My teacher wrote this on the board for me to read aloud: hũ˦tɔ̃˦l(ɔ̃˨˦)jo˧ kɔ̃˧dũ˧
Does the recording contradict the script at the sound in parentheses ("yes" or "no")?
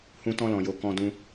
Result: yes